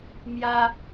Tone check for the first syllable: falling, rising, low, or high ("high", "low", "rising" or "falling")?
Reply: high